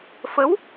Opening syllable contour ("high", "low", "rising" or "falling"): rising